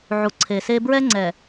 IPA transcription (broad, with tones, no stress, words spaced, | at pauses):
ʕu˨ǀʰe˨se˦ bɹɛ˦ŋ͡ǀɛ˨